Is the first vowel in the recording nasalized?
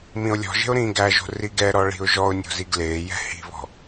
yes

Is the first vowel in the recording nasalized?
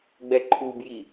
no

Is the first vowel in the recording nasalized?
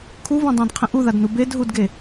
no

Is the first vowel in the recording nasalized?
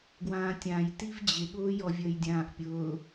yes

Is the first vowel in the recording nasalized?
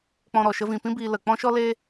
yes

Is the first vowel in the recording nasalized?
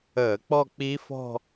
no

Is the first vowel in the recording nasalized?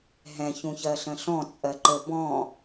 yes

